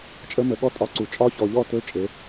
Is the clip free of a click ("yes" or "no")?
no